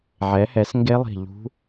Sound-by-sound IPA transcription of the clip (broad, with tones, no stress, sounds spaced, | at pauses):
ʕ ɛ˩˥ h ɛ˩˥ s ŋ ɡ e˦˥ lˠ i̤˧˩ ʎ ṳ˦˥